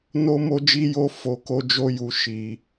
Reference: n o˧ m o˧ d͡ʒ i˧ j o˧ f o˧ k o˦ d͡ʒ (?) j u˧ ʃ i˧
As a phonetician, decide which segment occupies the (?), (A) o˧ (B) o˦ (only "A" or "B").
B